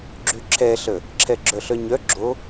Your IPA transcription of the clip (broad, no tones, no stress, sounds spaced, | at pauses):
ɡ͡ǁ y ǁʰ ɛ ɬ ə | ǁʰ ɛ ɡ͡ǁ œ ɬ œ ɲ œ ɡ͡ǁ o